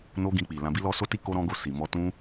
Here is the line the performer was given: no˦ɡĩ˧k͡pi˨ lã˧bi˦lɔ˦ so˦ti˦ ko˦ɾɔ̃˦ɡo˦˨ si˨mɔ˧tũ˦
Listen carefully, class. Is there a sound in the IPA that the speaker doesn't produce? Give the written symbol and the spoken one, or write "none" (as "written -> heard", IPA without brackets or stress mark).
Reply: none